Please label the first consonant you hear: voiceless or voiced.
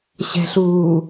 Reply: voiceless